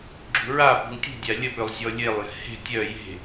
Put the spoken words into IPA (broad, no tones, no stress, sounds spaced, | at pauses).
ɡ͡ǁ ṳ ɹ a p ṳ ŋ tʲ ṳ dʲ a lʲ ə p ø lˠ zʲ ɔ lʲ e lˠ j ɛ̤ h e̤ tʲ œ j e̤